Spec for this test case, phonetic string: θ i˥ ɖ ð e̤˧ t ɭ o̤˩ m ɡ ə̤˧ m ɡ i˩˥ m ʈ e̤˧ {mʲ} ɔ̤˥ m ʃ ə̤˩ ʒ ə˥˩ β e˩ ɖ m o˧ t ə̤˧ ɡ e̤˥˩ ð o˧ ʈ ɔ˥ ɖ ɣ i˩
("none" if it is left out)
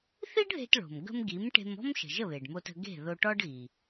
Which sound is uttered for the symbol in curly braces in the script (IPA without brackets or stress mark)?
m